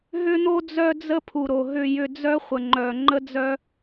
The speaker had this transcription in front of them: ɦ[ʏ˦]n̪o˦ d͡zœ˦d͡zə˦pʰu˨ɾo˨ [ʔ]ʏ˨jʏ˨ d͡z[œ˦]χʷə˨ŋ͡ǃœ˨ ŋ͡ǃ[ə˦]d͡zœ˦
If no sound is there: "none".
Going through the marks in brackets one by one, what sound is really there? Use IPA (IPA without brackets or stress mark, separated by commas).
ʏ˦, ɦ, œ˦, ə˦